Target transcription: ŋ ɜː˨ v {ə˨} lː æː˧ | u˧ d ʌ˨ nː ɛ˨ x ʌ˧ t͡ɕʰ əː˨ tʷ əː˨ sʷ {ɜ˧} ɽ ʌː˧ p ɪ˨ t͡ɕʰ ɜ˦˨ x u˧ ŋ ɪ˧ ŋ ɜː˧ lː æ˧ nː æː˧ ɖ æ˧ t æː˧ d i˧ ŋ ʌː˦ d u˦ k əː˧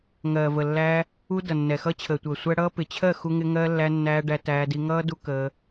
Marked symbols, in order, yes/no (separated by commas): yes, no